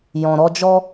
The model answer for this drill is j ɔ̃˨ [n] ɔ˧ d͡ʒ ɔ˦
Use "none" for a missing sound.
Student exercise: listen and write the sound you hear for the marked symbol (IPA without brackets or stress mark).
ɾ